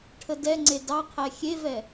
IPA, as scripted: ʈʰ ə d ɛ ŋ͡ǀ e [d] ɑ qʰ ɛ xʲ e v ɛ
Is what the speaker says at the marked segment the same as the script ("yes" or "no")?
yes